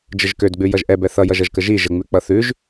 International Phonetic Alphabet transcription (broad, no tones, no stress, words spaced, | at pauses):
d͡ʒəʒkødɡ͡bʉ jʌʒʔɛbɛ θʌjʌʒ ʌʒkəʒi ʒəŋ͡mʉ k͡pʌθʉʒ